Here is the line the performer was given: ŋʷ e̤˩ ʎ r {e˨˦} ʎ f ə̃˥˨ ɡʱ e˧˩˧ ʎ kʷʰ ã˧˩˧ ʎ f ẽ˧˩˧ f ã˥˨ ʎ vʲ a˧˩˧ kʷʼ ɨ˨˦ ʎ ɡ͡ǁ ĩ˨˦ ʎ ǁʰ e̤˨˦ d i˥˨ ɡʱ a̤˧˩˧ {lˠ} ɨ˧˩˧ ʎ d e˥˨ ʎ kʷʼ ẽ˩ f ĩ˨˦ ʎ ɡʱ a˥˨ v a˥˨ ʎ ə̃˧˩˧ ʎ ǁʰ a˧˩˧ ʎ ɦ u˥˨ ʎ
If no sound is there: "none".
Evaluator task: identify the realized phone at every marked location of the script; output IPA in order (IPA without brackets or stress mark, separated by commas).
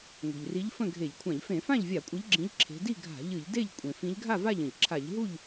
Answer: i˨˦, ʎ